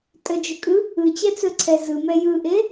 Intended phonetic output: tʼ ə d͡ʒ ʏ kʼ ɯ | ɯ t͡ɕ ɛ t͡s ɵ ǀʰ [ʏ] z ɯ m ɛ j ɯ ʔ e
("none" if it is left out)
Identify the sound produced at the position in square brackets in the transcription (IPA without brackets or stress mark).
ɛ